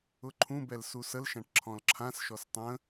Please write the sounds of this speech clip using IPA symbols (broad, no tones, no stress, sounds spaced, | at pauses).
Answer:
ʊ ǃʰ ũ b ɛ l s u s ə l ʃ ã ʈ ǁʰ ɔ̃ l ǁʰ ã s ʃ ɔ s tˤ ə̃